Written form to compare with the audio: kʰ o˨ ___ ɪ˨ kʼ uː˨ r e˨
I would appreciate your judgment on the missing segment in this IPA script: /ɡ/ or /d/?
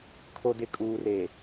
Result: d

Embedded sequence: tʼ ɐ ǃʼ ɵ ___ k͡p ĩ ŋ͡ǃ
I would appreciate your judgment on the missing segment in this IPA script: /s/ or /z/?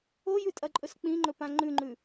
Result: s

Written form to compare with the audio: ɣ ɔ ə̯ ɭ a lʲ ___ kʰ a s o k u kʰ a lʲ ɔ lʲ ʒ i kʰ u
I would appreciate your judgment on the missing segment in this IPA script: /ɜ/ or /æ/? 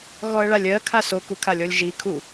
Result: ɜ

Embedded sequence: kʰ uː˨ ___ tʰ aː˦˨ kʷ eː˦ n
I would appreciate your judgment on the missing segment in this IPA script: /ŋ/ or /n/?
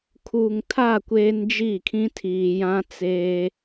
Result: ŋ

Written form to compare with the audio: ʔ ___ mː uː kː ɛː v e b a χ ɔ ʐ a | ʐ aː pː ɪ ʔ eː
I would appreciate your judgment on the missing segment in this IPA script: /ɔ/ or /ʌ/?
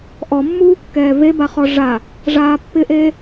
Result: ɔ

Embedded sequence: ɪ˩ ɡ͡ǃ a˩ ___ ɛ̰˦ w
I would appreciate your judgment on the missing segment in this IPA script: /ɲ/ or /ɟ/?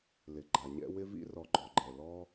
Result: ɲ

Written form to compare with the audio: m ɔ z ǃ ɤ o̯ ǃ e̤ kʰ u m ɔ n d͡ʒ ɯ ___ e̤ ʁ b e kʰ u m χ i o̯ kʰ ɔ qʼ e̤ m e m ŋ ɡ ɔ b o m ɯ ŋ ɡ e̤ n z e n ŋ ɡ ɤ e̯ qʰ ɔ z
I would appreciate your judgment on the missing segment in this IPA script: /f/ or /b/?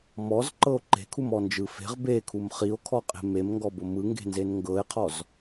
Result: f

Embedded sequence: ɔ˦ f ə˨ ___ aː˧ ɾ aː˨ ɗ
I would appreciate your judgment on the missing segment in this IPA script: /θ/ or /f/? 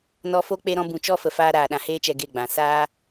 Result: f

